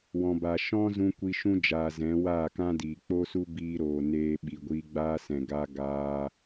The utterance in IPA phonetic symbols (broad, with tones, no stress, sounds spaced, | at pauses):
w ɔ̃˨ b a˨ ʃ ɔ̃˦ z ũ˧ kʷ i˧ ʃ ũ˦ d͡ʒ aː˨ z ɛ̃˨˦ w aː˦˨ k ã˦ d iː˨ k͡p o˦ s u˦ b iː˧ ɾ oː˨ n eː˧ ɓ i˨ ɡʷ iː˧ ɡ͡b aː˦ s ɛ̃˨ ɡ aː˧ ɡ aː˧